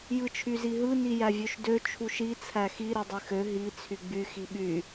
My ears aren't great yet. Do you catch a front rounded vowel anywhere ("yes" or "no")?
yes